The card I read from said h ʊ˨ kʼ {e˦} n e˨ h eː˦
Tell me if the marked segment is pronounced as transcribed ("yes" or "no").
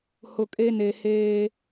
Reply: yes